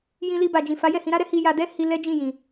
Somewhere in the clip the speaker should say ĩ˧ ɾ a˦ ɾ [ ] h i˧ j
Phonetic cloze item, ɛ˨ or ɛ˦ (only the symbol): ɛ˦